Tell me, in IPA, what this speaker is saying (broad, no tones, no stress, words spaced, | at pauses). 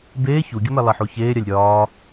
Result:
beː çuɡʲəmɛ lˠɛħuçeːɾʲalʲ ɾʲɒː